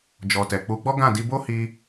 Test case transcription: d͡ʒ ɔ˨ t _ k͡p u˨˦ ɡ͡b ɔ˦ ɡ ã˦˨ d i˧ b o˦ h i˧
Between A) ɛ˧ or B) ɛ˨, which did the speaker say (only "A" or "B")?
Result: B